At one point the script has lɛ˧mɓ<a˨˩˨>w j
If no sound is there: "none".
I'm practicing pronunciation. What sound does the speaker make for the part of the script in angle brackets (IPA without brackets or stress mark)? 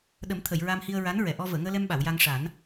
a˨˩˨